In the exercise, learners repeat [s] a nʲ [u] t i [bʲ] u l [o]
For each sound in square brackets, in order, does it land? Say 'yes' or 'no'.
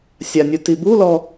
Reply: no, yes, no, no

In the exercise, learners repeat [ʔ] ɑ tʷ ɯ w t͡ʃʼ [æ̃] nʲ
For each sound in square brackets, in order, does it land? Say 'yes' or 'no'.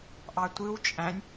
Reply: yes, yes

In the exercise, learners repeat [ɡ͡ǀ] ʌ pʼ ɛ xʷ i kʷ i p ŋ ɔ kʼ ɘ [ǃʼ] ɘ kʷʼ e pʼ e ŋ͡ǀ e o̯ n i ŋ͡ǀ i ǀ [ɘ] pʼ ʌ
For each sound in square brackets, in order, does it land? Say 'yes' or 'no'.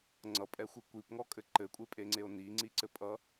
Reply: no, no, yes

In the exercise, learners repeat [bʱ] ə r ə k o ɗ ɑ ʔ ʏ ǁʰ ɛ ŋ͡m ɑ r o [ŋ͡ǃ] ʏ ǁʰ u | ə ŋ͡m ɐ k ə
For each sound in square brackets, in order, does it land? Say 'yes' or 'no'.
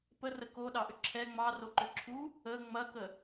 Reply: no, no

